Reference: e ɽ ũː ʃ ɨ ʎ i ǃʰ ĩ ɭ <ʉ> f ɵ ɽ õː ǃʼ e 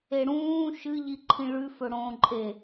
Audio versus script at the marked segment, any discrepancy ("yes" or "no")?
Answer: no